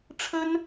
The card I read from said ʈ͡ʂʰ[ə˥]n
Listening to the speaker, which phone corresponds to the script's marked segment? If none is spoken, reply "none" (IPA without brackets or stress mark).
ə˥